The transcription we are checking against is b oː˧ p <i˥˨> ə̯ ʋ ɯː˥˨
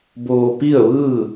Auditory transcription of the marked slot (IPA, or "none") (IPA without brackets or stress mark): i˥˨